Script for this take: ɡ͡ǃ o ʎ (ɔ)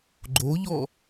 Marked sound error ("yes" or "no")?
no